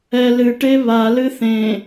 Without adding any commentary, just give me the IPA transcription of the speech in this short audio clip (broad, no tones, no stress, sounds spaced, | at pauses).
ɛ l ɨ ʈ e β a l ɨ θ ẽ